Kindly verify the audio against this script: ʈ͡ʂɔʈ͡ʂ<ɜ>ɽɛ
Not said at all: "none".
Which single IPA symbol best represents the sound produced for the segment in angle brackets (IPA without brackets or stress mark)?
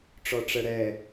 ɜ